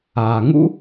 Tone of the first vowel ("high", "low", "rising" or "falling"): low